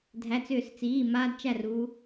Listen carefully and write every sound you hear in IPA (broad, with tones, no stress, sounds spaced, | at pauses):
dʱ æ˩˧˩ t͡s ʏː˧˩˧ s t͡s iː˩˧˩ m aː˦ d t͡ʃ æ˥˩ r u˨˦